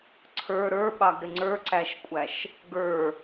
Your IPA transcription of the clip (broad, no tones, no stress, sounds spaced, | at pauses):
ǀʰ ə˞ ɾ ə˞ ɓ ɑ ɡ ɾ ɪ ŋ͡ǀ ə˞ ǀ æ ʃ kʷʼ æ ʃ | ɡ ə˞